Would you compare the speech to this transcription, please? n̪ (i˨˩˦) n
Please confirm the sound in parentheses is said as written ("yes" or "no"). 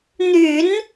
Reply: no